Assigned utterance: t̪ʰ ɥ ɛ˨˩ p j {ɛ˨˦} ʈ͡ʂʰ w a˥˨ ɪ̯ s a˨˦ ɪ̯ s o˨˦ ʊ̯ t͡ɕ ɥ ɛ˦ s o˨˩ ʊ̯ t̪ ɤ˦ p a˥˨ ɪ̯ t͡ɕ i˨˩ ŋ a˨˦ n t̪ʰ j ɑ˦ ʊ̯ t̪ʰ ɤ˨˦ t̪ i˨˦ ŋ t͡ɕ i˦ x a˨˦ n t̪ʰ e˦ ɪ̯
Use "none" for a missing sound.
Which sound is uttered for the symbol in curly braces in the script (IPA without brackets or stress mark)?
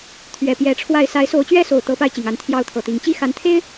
ɛ˨˦